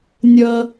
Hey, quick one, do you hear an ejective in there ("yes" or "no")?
no